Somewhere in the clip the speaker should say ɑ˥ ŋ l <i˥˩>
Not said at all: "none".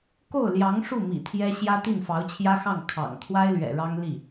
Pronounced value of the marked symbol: i˥˩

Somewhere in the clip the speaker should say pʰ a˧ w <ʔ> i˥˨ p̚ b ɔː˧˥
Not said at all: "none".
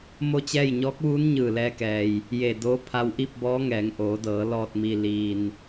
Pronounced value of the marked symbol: ʔ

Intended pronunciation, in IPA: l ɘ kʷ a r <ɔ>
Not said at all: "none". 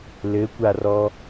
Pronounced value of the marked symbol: ɔ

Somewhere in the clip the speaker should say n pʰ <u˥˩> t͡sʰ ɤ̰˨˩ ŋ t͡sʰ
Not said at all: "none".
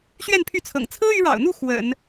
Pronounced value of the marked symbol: y˥˩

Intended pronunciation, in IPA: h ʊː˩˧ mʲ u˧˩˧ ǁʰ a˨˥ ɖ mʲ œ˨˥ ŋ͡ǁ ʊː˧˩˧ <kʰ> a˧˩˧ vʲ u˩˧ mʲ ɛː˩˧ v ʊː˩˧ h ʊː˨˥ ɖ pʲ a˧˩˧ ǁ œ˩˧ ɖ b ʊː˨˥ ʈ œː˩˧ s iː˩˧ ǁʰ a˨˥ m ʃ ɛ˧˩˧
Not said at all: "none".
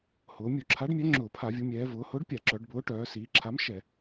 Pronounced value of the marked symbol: pʰ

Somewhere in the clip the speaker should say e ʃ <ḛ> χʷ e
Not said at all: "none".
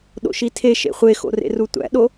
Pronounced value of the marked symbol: ḛ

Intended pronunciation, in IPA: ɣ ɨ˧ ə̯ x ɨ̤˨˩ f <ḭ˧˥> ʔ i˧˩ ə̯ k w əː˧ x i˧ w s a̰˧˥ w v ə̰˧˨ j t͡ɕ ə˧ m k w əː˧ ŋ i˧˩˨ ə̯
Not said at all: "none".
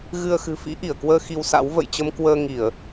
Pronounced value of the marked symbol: ḭ˧˥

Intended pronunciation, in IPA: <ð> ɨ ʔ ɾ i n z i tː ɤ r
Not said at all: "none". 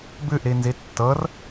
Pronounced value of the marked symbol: b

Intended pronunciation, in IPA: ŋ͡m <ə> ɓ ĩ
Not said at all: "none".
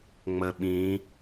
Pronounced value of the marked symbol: ə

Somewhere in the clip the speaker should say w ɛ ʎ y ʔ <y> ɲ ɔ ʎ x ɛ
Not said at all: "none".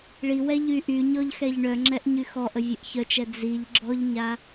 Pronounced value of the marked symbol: y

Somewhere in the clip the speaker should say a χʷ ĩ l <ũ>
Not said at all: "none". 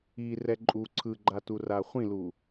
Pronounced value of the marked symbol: u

